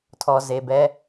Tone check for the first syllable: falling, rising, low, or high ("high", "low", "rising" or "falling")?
low